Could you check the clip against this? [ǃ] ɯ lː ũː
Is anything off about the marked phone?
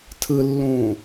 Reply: yes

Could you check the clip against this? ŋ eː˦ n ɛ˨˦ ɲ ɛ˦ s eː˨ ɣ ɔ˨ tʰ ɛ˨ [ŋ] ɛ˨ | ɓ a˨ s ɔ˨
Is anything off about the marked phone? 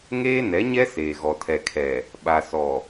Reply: yes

